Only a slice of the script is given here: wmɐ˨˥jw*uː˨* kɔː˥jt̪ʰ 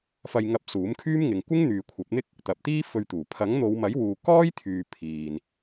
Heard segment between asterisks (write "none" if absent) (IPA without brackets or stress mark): uː˨